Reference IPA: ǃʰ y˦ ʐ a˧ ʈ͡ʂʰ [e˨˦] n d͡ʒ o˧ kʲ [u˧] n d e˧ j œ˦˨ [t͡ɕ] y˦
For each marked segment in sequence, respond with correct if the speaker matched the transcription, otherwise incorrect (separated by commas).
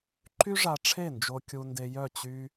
incorrect, correct, correct